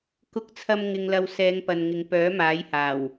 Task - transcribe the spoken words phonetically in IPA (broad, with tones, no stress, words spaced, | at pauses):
kʊ˧k̚t͡sʰɐ˧m ŋɪ˧ŋlɐ˧w sɛː˨˧ŋpɐ˨nŋɪ˨˧ŋ pœː˨˥maː˨˥j haː˨˩w